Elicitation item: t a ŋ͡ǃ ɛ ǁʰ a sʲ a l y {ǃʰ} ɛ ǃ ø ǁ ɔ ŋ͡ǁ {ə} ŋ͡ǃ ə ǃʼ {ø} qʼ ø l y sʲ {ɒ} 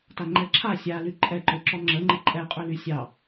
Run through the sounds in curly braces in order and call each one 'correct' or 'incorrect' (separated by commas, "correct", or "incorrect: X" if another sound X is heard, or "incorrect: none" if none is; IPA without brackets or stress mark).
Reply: incorrect: ǃʼ, correct, incorrect: ɛ, incorrect: ɑ